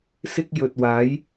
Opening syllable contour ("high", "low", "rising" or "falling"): high